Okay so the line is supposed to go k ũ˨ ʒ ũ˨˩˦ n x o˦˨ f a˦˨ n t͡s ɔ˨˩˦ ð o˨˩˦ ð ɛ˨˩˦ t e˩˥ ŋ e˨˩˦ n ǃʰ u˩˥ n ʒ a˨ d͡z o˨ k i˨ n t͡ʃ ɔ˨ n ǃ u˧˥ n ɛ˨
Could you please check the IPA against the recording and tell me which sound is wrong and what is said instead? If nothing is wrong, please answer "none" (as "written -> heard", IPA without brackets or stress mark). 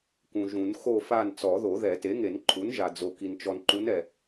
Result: none